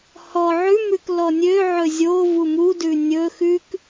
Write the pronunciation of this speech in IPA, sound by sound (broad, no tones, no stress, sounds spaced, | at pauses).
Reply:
h ɔ ʕ ʉ m ʉ k l ɔ nʲ ø ʕ ɵ zʲ o v u m u d ʉ nʲ ɵ x ʉ k